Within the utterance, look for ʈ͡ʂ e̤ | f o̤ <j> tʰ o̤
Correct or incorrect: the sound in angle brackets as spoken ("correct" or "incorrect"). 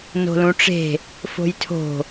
correct